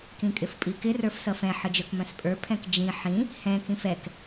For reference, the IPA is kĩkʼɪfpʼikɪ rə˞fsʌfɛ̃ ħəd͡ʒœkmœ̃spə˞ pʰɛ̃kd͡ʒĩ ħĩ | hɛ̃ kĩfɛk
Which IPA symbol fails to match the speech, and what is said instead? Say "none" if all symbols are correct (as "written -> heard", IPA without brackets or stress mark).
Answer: p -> pʼ